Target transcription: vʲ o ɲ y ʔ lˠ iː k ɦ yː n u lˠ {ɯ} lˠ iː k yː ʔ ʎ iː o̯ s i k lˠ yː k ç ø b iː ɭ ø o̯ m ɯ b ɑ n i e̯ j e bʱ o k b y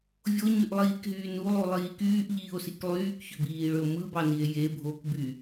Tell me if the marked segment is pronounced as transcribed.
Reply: no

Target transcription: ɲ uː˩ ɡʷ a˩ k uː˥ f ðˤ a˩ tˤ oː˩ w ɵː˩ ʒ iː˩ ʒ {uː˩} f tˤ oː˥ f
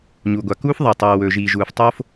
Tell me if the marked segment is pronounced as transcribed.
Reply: yes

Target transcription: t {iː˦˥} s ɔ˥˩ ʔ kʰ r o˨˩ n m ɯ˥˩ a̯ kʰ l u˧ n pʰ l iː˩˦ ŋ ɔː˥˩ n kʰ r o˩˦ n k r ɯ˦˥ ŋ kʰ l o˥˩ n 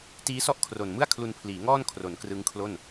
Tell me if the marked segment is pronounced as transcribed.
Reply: yes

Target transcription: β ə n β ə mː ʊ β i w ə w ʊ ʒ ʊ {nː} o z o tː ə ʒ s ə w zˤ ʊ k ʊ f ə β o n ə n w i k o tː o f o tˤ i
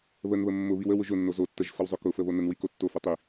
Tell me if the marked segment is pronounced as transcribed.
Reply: yes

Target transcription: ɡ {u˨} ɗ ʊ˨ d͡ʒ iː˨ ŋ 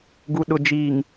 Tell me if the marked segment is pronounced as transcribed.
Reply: yes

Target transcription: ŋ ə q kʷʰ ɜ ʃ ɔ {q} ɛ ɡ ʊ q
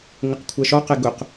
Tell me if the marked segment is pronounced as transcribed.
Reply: yes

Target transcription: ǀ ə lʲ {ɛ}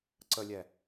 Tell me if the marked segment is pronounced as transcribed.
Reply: yes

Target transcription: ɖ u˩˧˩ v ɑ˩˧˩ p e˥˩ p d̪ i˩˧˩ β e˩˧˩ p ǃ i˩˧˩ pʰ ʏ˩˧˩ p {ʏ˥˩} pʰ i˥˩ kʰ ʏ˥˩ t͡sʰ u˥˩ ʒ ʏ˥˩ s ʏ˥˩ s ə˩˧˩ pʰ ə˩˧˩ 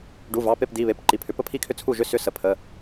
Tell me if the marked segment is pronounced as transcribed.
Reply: no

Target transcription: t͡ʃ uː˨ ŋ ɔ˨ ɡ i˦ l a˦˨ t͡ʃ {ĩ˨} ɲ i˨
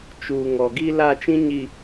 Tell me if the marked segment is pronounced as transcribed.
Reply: no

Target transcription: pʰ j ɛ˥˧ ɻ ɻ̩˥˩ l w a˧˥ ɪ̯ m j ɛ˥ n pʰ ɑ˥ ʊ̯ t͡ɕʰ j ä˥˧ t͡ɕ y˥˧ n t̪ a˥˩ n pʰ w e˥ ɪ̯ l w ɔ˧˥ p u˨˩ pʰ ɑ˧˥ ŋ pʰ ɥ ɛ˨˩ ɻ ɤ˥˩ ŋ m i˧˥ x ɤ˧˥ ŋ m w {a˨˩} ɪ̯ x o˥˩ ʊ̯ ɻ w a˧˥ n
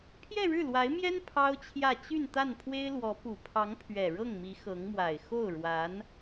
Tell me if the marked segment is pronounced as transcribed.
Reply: yes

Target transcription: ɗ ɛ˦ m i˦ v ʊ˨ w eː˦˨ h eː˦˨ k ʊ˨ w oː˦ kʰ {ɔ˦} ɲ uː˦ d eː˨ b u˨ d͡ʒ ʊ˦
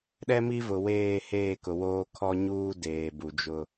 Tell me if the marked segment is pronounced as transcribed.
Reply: yes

